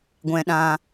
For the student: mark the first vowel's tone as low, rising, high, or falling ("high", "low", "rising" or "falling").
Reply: low